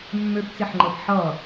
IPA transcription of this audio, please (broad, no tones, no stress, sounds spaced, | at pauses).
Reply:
mː ø p t͡s e ħ ŋ͡ǃ ɤ p ħ ʌ